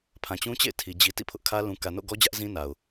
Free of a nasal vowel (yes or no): no